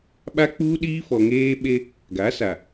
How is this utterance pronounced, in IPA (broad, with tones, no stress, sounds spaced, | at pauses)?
ɓ a˦ k͡p uː˦ ɗ iː˦ f ɔ˨ ŋ eː˦ ɓ e˦ | ɡ a˨˦ s a˨